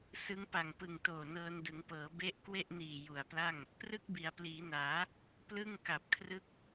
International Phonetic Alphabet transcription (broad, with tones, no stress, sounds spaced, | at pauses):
s ɯ˦˥ ŋ p a˨˩ ŋ p ɯ˨˩ ŋ t oː˨˩ n ɤː˧ n d ɯ˩˦ ŋ p ɤː˩˦ b e˦˥ ʔ k w e˥˩ ʔ n iː˨˩ j u˨˩ a̯ p l a˥˩ ŋ | p r ɯ˥˩ k̚ b i˩˦ a̯ p l iː˩˦ n aː˩˦ | p l ɯ˥˩ ŋ k a˨˩ p̚ kʰ r ɯ˦˥ k̚